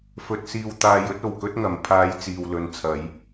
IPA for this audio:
f ɵ˧ t̚ s iː˧ w t̪ aː˧ j ɵ˥ t̚ o˨ w k ɵ˥ t̚ ŋ ɐ˨˧ m pʰ aː˨˧ j t͡s iː˨ w l ɵ˨˧ n t͡sʰ ɐ˨˧ j

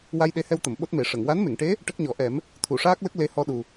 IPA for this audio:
w a˧ j ɗ e˧˥ h ɛ˧ w t̪ ə˨˩˨ m ɓ o˦˥ t̚ m e˨˩˦ ʂ ə˨˩˨ ŋ w a˧˥ n m e˨˩˨ ŋ ʈ e˧˥ | ʈ ə˦˥ k̚ ɲ ɔ˨˩˦ ʔ ɛ˨˩˦ m | t̪ʰ u˨˩˨ ʂ aː˦˥ k̚ l ə˦˥ k̚ l e˧˥ h ɔ˧ ɗ u˨˩

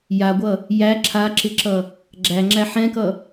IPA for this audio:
j a ɡʷ ʌ | j æ ǁʰ a ǁ ɪ ǁ ʌ | ɡ͡ǁ æ ŋ͡ǁ æ ħ ɛ̃ k ʌ

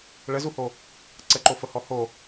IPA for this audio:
ɭ ə z u h o | ǀ ə ǃ o f ə h ɔ h o

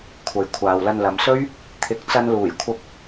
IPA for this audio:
kʷʰ ɐ˨ j kʷʰ aː˨ w l ɐ˧ n l ɐ˨˧ m s ɵ˥ ɥ | t̪ʰ ɪ˨˥ k̚ t͡s ɐ˧ n l uː˨˩ j kʷʰ ɐ˧ p̚

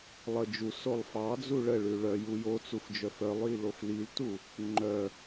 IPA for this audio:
lˠ ə d͡ʒ u s o lˠ f ɑ d͡z u ɭ ə ɭ ʉ ɭ œ j u j o t͡s u f d͡ʒ œ f œ lˠ j i l o f l i l t u | ŋ͡ǃ œ

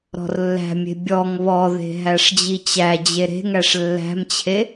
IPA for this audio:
ɾ ɔ̤ r lː æ̤ mʲ e̤ bʲ ɔ ŋ β ɔ ð e̤ ɦ æ ʂ d͡ʑ i t͡ɕ æ d͡ʑ e ɾ e̤ ŋ æ ʂ lː æ̤ m t͡ɕʰ e

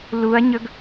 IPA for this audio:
l u ɐ̯ ɲ ɵ ɡ

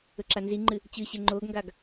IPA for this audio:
ɵ ǁ a n z i ŋ͡ǃ ɨ | t͡ɕ ɨ ɕ e ŋ͡ǃ o ɡ ŋ ɡ a ɡ

